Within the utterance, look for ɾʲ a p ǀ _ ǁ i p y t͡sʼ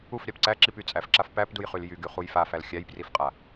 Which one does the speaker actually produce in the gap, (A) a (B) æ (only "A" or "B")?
B